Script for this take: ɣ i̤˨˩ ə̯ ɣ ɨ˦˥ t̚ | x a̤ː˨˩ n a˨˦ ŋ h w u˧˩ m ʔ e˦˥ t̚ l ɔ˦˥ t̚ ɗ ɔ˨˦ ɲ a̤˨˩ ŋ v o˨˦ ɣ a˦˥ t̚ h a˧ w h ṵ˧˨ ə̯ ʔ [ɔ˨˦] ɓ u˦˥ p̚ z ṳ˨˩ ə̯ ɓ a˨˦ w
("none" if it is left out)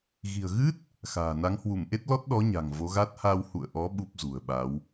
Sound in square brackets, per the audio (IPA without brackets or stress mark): ɔ˨˦